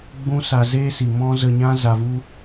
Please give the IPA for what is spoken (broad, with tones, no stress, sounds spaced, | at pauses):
ɡ͡b ũ˦ s a˧ z eː˦ s i˨ m ɔ̃˦ z ə˧ ɲ ã˦ z a˧ v u˦